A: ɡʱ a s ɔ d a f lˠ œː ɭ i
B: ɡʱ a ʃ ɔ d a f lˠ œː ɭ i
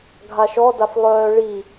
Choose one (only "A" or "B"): B